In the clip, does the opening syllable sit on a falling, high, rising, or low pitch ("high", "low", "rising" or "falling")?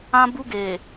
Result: high